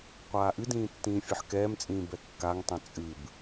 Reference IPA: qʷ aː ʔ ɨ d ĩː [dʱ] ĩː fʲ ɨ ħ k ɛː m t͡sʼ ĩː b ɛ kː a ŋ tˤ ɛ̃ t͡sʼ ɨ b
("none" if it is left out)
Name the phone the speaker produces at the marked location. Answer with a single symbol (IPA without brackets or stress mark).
tː